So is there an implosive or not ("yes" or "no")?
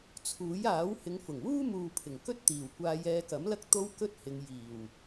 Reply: no